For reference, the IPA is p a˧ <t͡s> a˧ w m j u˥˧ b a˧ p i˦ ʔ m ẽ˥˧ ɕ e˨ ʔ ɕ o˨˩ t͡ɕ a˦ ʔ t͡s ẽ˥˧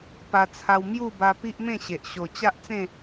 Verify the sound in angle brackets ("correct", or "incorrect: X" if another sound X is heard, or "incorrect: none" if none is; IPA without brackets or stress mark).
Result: incorrect: t͡sʰ